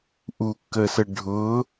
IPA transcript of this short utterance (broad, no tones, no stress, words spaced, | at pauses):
ʔukːəsə ɖʱʊː